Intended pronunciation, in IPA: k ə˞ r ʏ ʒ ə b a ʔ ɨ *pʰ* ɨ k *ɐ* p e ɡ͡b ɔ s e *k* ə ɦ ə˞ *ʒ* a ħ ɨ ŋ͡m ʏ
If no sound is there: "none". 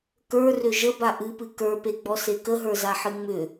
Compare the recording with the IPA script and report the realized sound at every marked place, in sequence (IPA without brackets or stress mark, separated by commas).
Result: p, ə˞, k, z